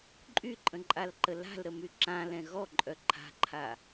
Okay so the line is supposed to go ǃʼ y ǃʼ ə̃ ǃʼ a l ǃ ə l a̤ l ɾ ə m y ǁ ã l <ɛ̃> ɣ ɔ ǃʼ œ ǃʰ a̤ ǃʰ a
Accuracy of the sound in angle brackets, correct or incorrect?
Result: correct